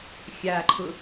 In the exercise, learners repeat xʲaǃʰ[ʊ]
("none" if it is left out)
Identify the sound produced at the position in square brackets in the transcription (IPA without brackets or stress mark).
ʊ